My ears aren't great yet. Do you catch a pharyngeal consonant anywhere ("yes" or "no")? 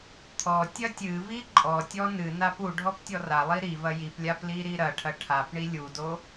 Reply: no